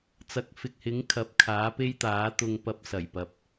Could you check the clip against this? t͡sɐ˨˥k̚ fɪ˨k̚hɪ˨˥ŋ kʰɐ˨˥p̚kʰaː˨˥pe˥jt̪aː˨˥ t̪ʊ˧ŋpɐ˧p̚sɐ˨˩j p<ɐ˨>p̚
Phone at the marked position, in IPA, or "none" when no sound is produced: ɐ˨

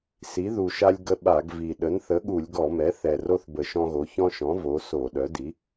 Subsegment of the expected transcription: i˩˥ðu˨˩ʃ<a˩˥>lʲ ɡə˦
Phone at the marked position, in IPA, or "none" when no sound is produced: a˦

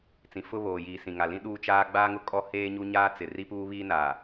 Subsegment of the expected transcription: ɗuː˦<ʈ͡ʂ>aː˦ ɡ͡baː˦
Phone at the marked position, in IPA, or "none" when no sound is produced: t͡ʃ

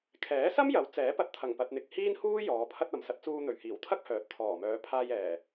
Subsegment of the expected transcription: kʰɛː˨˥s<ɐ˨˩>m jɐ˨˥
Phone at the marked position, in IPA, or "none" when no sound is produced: ɐ˥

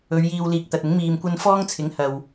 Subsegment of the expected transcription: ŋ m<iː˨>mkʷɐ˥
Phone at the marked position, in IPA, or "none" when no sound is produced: iː˧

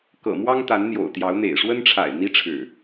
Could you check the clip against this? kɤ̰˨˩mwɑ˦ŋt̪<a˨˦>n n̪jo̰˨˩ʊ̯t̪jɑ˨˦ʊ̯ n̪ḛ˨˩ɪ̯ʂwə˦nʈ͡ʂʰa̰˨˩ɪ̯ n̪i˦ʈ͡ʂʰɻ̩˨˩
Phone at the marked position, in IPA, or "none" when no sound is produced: a˨˦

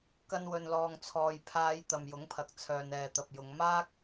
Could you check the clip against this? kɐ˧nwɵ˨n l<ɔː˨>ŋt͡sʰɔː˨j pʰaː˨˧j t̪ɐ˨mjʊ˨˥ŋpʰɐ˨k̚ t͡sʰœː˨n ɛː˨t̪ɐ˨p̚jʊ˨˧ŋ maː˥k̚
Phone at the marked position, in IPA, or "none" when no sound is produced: ɔː˨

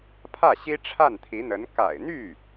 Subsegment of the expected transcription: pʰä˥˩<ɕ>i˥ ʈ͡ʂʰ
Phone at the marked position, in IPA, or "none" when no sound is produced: ɕ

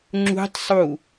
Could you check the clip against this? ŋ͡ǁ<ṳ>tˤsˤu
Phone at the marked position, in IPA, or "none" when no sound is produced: ṳ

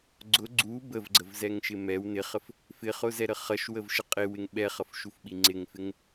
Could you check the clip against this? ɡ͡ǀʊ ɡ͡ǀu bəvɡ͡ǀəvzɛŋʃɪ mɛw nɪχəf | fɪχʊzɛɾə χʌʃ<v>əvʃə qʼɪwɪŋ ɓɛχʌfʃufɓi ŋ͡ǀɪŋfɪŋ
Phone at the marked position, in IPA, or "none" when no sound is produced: w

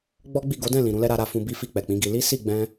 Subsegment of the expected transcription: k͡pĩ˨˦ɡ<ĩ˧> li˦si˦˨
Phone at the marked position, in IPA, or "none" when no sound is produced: i˧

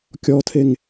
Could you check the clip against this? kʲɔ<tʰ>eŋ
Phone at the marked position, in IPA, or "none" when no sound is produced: tʰ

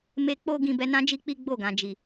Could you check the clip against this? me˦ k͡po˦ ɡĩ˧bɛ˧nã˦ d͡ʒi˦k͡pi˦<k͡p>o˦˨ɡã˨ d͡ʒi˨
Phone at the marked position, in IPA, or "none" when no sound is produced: ɡ͡b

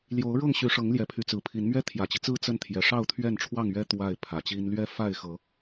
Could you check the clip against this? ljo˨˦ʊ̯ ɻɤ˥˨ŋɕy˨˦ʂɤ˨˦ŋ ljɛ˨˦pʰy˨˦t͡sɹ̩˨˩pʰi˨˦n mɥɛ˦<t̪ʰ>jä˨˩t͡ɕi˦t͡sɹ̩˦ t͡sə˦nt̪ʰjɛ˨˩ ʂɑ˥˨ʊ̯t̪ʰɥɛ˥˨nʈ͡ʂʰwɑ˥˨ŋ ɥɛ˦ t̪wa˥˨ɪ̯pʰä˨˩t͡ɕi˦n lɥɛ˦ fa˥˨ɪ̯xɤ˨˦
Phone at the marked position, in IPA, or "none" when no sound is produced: t̪ʰ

